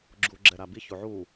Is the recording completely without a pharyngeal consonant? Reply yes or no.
no